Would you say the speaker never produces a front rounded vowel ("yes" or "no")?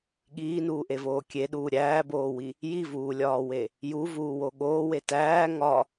yes